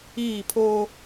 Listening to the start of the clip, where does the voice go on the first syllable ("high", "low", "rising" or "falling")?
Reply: falling